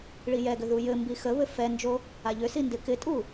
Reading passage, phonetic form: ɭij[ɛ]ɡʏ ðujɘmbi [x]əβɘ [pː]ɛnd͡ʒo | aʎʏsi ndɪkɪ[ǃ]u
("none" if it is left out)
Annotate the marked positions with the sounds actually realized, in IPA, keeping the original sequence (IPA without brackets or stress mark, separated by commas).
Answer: ɛ, x, f, tʼ